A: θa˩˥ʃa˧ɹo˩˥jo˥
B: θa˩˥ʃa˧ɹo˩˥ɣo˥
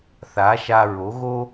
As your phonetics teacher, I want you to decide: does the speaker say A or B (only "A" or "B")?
B